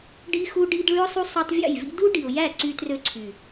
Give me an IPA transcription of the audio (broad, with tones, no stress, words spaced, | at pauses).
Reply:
ɖi˧xu˧ɖi˧d ɭy˧ʊ̯sˤu˧ sˤo˧tˤvʲɑ̰˦˨jvḭ˦ du˦ɖi˨ʊ̯jæ˦˨ ǀy˦trø˦ǀʰy˨